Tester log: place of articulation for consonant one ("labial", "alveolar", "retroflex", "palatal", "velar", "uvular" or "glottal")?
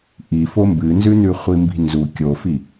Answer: glottal